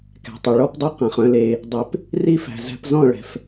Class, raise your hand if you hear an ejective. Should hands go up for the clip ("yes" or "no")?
no